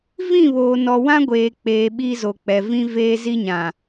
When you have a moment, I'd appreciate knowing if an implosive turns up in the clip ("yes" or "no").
yes